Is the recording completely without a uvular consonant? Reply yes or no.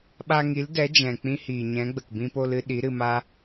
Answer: yes